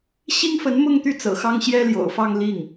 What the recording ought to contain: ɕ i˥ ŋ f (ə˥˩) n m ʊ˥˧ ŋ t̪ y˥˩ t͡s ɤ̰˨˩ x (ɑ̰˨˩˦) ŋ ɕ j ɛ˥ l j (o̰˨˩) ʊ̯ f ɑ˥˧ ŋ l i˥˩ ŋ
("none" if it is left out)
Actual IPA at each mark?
ə˧˥, ɑ˥, o̰˨˩

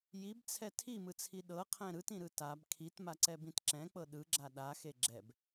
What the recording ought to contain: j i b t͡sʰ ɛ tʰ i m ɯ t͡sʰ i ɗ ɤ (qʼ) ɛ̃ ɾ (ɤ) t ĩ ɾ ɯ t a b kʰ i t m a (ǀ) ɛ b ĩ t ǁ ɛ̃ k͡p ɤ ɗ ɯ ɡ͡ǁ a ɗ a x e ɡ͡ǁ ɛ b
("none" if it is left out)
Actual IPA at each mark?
qʰ, ɯ, ǀ

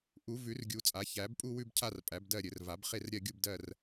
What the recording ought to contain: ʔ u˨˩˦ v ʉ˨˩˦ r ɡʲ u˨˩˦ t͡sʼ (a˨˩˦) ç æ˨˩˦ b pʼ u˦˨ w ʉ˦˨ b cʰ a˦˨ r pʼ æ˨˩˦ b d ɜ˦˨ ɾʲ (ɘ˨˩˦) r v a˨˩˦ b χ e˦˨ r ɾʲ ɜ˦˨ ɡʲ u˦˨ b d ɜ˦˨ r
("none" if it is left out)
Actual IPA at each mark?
a˨˩˦, ɘ˨˩˦

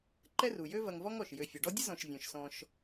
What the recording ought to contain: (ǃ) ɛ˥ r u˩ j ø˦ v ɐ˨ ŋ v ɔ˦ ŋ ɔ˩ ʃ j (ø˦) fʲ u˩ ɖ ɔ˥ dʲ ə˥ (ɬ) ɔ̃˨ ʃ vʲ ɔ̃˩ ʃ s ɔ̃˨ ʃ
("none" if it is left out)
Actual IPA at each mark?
ǃ, ø˨, z

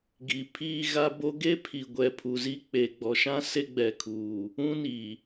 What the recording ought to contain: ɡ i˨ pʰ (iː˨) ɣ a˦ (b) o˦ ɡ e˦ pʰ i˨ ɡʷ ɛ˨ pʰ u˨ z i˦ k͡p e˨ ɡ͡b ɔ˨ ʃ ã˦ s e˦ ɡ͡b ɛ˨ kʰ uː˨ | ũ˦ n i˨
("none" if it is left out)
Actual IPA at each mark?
iː˦, b

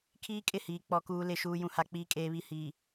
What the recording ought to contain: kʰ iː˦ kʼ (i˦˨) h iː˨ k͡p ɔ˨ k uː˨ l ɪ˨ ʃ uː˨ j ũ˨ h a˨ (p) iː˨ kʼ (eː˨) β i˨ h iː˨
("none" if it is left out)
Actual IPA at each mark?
ɪ˦˨, k͡p, eː˨

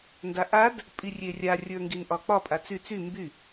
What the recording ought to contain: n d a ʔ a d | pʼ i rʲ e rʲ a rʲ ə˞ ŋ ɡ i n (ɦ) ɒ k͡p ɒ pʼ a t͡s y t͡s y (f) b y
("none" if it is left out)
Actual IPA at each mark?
ʔ, m

